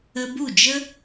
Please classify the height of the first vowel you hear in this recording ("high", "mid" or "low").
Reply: mid